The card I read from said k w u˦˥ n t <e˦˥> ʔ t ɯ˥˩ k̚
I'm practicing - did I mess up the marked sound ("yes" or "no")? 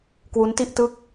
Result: yes